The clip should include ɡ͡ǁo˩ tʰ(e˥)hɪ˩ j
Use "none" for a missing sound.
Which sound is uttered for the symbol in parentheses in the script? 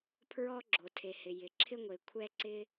e˩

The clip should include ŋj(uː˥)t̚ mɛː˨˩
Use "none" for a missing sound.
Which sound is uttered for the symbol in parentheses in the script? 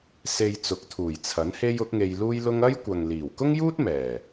uː˥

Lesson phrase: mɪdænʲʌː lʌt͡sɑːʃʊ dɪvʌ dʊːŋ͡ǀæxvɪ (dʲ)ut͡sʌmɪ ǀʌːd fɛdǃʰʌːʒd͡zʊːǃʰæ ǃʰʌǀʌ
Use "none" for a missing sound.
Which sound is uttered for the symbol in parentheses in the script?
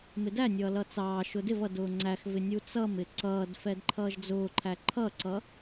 nʲ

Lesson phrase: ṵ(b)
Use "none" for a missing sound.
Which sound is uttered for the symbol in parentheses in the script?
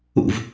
v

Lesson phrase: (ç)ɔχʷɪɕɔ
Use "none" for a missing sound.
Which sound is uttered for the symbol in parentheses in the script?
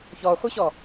ç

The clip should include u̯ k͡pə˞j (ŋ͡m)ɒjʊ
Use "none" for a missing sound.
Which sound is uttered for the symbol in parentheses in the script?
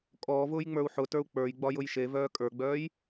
ɡ͡b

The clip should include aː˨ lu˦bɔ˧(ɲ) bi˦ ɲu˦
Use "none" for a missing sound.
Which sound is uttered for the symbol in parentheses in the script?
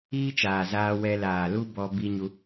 none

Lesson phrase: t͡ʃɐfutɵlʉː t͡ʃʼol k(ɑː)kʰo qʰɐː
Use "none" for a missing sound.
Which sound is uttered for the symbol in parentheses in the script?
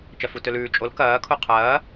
ɐː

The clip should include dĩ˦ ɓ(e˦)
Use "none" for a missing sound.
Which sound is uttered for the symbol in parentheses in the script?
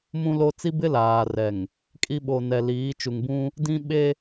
e˦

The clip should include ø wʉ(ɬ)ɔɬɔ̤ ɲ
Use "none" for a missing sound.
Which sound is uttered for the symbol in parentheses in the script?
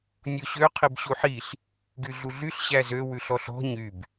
ɬ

